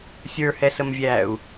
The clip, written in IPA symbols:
sʲ ə˞ h ɛ s ə m vʲ æː u̯

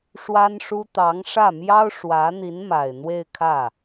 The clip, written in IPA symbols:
ʂ w a˥ n ʂ u˥ t̪ ɑ˧˥ ŋ ʂ ä˥˩ m j ɑ˥ ʊ̯ ʂ w ä˧˥ n̪ i˧˥ n m a˨˩ ɪ̯ n̪ w e˥˧ ɪ̯ kʰ ä˥˩

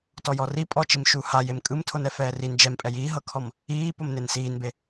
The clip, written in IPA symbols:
t ɔ j ɔ r i pʼ ɔ t͡ʃ i m ʃ u h a j e m kʼ ɯ m tʰ o n ɛ f ɛː r i n d͡ʒ ɛ m pʼ ɛ j iː ɦ ɤ kʰ ɔ m | iː p o m n e n s iː n b e

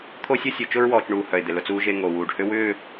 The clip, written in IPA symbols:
t̪ʰ o˦ sʲ o˦ sʲ o˨ t͡ʃ ʊ˦ ɹ w ɔː˨ t͡ʃ ɳ uː˨ h œ˨ ɪ̯ d̪ ɪ˨ l ʊ˦ t͡s uː˦ ʒ e˦ ŋ o˨ w uː˨ ɖ h ʏ˦ w ʏː˦˨

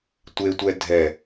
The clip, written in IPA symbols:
tʷ e tʷ ɛ dʱ ɛ

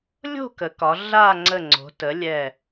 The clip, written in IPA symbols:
lʲ o̤˥˨ k ə˩˧ k ɒ˩˧ ɮ a˥˨ ŋ͡ǀ ə˧˩ ŋ͡ǀ o̤˩˧ t ə˩˥ lʲ ɛ˧˩

